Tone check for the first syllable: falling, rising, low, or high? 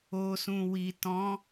low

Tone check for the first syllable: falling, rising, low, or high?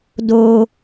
low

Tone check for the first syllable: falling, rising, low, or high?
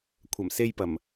low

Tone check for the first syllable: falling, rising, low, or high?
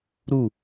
falling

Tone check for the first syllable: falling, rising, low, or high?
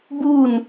falling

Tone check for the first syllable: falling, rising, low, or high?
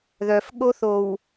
low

